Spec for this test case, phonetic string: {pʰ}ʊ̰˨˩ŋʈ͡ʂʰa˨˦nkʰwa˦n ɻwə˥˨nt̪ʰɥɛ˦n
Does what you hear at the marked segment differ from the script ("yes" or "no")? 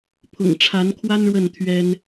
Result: no